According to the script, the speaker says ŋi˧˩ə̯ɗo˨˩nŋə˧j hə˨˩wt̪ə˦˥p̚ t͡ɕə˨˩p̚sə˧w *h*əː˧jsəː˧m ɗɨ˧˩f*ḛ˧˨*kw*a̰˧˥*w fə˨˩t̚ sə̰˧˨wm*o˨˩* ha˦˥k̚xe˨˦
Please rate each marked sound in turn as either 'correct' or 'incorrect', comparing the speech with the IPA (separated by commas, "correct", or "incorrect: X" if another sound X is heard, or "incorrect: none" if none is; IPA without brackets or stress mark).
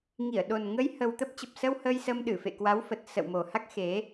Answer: correct, correct, incorrect: a˨˦, correct